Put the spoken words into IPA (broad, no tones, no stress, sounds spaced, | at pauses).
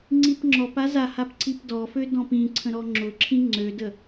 ŋ͡ǀ i p ŋ͡ǁ ɔ p a z a h a p ǀ i p d ɔ f ø d ɔ̃ p ĩ ǀʰ ə̃ ɾ ɔ ŋ͡ǁ ʊ ǁʰ ĩ ŋ͡ǀ ø d ə